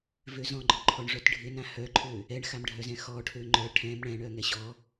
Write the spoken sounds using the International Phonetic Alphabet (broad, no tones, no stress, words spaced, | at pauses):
vøzɔ̃ɡ͡ǃɔǃʰɔɳ ʐœtɖʱɪnã hœǃʰø | ɛɳxamɖʱœzɛ̃ xɔʈʰø ŋ͡ǃœ ʈʰɛ̃m ɳɛ̃ɳœ ŋɛɕɔ